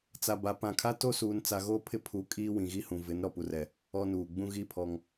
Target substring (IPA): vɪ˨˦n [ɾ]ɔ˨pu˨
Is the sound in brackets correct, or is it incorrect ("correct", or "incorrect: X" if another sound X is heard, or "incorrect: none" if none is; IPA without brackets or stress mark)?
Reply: correct